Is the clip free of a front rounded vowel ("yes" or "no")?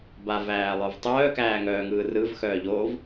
no